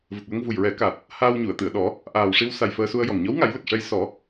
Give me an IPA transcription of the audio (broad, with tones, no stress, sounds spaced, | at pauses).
v ə˨˩ k̚ w ə˧ ŋ v u˨˩ j ɹ ɛ˨˩˦ k a˨˩ t̚ | h aː˧ w ɲ u˨˩˨ ə̯ t̪ ɨ˨˩˨ ə̯ ɗ ɔ˨˩˦ | ʔ aː˨˩ w ʂ i˧ w s a˨˩ j f əː˧ s u˧ ə̯ j ɔ˨˩ ŋ ɲ ɔ˧˥ w ŋ a˨˩˦ j l ə˨˩ k̚ ʂ ɛ˧ j s ɔ˨˩˦